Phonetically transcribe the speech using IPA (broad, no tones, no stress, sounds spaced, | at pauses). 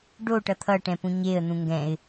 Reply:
ɖ o ʈ ʌ t̪ʰ ʌ ʈ ɛ̃ p ũ ɲ e ə̯ n̪ ũ ŋ ɡ ɛ̃ ɪ̯